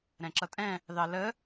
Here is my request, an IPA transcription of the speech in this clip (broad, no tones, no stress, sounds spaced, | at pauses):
ɾ ɛ̃ ǁ ʌ tʼ ɛ̃ | ð ɑ l ə